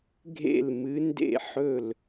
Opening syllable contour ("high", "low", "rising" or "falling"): falling